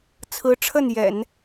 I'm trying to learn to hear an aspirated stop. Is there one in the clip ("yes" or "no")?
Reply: yes